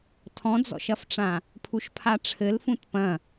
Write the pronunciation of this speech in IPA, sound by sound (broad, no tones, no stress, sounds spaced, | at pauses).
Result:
tʰ ɔ̃ d͡z ɔ̰ ʃ ɐ f ʈ͡ʂ ã | pʰ u ʃ pʰ a ʈ͡ʂʰ ɘ l f ũ t p ɐ̃